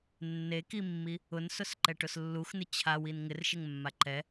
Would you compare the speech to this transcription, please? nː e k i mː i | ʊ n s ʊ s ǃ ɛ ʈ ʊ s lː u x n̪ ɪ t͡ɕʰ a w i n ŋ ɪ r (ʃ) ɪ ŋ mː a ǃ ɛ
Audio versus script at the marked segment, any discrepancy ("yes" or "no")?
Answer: no